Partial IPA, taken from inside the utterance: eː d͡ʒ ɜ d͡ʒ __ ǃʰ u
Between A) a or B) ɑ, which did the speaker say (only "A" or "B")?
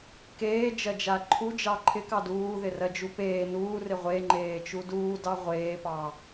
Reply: A